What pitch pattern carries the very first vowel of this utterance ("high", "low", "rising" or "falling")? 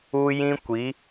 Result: high